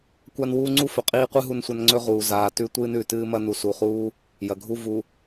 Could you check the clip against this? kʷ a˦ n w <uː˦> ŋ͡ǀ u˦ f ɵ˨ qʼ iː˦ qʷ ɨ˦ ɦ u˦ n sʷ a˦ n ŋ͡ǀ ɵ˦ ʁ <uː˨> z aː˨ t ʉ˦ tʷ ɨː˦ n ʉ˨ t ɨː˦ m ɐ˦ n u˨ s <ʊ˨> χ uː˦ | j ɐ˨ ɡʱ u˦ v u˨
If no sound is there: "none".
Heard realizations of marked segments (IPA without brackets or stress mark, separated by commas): uː˦, uː˨, u˨